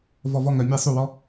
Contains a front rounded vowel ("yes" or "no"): yes